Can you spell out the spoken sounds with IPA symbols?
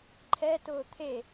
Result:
ǃʰɛtʊː t̪ʰe

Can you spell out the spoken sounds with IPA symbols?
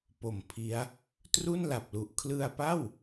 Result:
po˨˩mpʰi˦˥a̯ | tru˥˩nla˨˩p̚lu˨˩ʔ kʰlɯ˧a̯pa˥˩w

